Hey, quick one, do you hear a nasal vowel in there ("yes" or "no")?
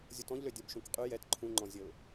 yes